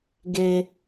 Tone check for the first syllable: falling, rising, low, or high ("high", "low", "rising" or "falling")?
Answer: low